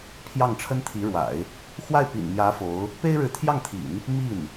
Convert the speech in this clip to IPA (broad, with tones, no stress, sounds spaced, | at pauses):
pʰ j ɑ˥˩ ŋ ʈ͡ʂʰ ə˥ n t̪ʰ i˧˥ ɻ w a̰˨˩˦ ɪ̯ | x w a˥˩ ɪ̯ p ḭ˨˩ n m j ä˧˥ f o˧˥ ʊ̯ | p e˥ ɪ̯ ɻ ɻ̩˧˥ t̪ʰ j ɑ˥˩ ŋ t̪ʰ ḭ˨˩˦ n | m i˥˩ n